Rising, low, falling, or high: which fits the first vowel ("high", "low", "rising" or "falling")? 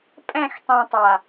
falling